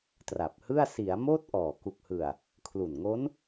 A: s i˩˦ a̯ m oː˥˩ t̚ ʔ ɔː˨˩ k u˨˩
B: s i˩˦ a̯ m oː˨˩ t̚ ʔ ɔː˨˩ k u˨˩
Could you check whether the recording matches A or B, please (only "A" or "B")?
A